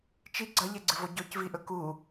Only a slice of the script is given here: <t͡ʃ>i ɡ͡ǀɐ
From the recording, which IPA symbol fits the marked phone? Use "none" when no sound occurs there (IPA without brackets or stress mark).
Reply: t͡ʃ